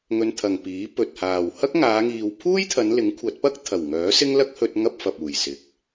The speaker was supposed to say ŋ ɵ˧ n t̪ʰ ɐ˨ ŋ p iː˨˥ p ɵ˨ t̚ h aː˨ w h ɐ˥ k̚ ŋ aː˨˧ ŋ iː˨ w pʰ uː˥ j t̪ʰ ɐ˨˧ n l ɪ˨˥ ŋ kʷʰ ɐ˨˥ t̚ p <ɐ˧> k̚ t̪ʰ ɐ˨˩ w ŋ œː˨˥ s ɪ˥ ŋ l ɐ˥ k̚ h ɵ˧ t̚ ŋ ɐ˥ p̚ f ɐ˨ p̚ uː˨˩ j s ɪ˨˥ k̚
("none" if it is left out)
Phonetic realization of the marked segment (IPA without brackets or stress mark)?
ɐ˥